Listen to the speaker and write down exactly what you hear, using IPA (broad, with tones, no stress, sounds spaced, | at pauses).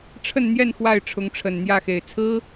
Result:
ʈ͡ʂʰ ə˥˧ n n̪ j ɛ˥˧ n x w a˥˩ ɪ̯ ʈ͡ʂʰ ʊ˧˥ ŋ ʈ͡ʂʰ ə˨˩ n n̪ j ä˥˩ x e˨˩ ɪ̯ t͡sʰ ɹ̩˥